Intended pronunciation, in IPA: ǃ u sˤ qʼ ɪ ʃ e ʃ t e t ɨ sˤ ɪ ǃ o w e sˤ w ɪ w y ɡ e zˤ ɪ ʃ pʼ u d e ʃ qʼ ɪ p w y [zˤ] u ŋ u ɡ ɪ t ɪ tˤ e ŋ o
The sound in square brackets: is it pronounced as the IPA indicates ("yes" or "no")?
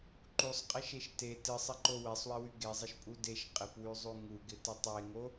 yes